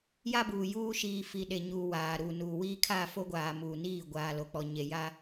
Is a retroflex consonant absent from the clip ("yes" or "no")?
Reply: yes